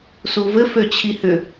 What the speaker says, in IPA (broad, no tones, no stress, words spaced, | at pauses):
suvɘ føt͡ɕʰihʏ